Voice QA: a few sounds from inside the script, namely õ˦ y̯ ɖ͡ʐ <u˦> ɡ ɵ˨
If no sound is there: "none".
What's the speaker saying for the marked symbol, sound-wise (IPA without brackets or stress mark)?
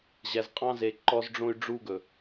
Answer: u˦